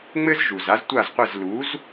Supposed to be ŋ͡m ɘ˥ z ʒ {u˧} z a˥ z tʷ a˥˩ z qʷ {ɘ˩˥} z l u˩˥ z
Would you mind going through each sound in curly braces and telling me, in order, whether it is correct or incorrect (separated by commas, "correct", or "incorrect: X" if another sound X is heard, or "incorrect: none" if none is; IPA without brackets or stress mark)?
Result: incorrect: u˩, incorrect: ɘ˥˩